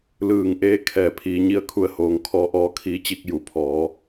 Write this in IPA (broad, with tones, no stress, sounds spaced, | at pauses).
l ɯː˧˩ ŋ ʔ eː˧˥ kʰ ɛː˧˩ pʰ iː˩˧ ɲ i˧ ə̯ kʰ u˧˩ ə̯ h oː˩˧ ŋ kʰ ɔː˧ ʔ ɔː˧˥ kʰ iː˧˥ t͡ɕ i˧ k̚ j u˩˧ pʰ ɔː˩˧